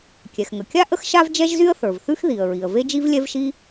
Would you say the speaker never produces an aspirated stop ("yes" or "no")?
yes